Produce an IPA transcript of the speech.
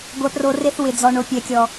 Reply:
ɡʷ ɛ˨ p r o˨ r e˦ θ w ɪ˨ d͡z ɔ˨ ɳ o˨ pʲ ɛ˨ kʲ ɔ˨

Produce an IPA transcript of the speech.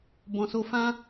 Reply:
b ɔ̃˨ s o˧ f ã˦

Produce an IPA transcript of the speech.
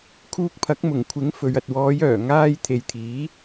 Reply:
kʰ uː˧ k̚ pʰ ɐ˨˥ k̚ m ʊ˨˩ ŋ kʷʰ ɪ˨˥ ŋ f ɵ˨ ɥ ɐ˨ t̚ w ɔː˨˧ j œː˨˩ ŋ aː˧ j t̪ʰ e˨ j t̪ʰ iː˨˥

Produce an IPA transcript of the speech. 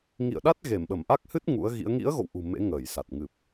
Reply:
ŋ ḭ˧˨ ə̯ ɗ a˦˥ t̚ ɣ e˧˩ m ɓ ə˧˩ m ʔ a˦˥ k̚ h ɨ˦˥ t̚ ŋ ṵ˧˥ ə̯ ɣ ḭ˧˥ ə̯ ŋ ḭ˧˥ ə̯ ɣ o̰˧˨ w ʔ ṳ˨˩ m ḛ˧˥ ŋ əː˧˩ j s a˨˩ t̚ ŋ ɨ˨˩ p̚

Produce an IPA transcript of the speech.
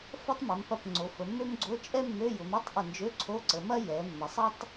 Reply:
f ɐ˥ tˤ m ɐ˩˧ m p ɐ˧˩ p ŋ͡ǀ o˩˧ f ə˩˧ mː ø˥ m ɡ͡ǀ o˧˥˧ t͡ʃʼ ɛ˥ mː ø˧˥˧ j ʊ˩˧ m e˧˥˧ tˤ ʔ ə˧˩ n d͡ʒ ø˧˥˧ ǀʰ o˧˥˧ ǀ ə˩˧ m ɐ˥ j ɛ˩˧ mː ə˩˧ sˤ ɐ˥ tˤ

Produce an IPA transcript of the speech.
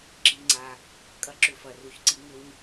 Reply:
ǁ i˧ ŋ͡ǀ a˧ | kʼ ɐ˦ ǁ ʏ˧ f ɐ˨ r u˨ ç ǀ i˧ ŋ ʏ˦ ɲ

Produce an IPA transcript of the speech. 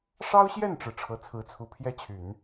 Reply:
ʂ ɑ˥ ʊ̯ ɕ j ɛ˥˩ n ʈ͡ʂ ɻ̩˩ ʈ͡ʂʰ ɤ˧˥ t͡sʰ ɹ̩˧˥ t͡sʰ u˧˥ pʰ j ɛ˥ t͡ɕʰ y˨˩˦ n

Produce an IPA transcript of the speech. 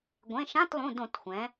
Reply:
ɡʷ ẽ˩˧˩ ʃ ã˧˥˧ t lˠ ũ˩˧˩ d õ˧˩˧ t xʷ ɛ̃˩˧

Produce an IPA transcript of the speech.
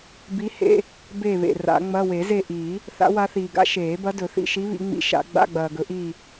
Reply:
b i˧˥ h ḛ˧˥˧ | b e˦˨ β ḛ˨ r a̰˨˩˦ ŋ͡m ɐ˧˥˧ w e˨˩˦ z e˦˨ ʔ iː˨˩˦ | θ a̰˧˥ w a˧˥ θ iː˨ ɡ a̰˧˥ ʃ eː˨˩˦ b ɐ˧˥ d ɵ˨˩˦ θ ḭ˧˥˧ ʃ i˧˥ β ḭ˨˩˦ ŋ͡m ḭ˨˩˦ ʃ a̰˨˩˦ ɡ͡b a̰˧˥˧ ɡ͡b ɐː˨ ɡ ɵ˨˩˦ ʔ iː˦˨

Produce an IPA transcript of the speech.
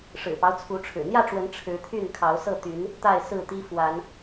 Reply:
ʂ ɻ̩˨˩ p ɑ˦ ʊ̯ t͡sʰ u˨˦ ʈ͡ʂʰ ɻ̩˨˩ n̪ j ä˥˨ ʈ͡ʂ w ə˨˦ n ʈ͡ʂʰ ɻ̩˨˦ t̪ʰ y˥˨ n kʰ ɑ˨˦ ʊ̯ s ɤ˥˨ t̪ y˨˦ n | t̪ a˥˨ ɪ̯ s ɹ̩˥˨ t̪ i˦ f w a˨˦ n

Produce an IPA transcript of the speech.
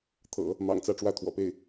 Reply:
t̪ʰ ɤ̰˨˩˦ | m ɑ̰˨˩ ŋ t͡s ä˥˧ ʈ͡ʂ w ä˥˩ t̪ʰ w ɔ̰˨˩ p e˥˩ ɪ̯

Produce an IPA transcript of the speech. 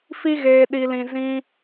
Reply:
f i˦ ɣ eː˧ ɗ i˧ l ĩ˧ z ĩ˦

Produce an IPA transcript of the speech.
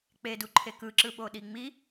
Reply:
k͡p e d u ǃʰ e k ɯ ǁ ɯ ɓ o ɗ i ŋ͡m i

